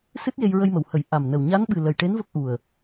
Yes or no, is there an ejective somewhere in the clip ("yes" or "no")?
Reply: no